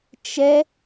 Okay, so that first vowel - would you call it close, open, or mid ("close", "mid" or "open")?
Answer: mid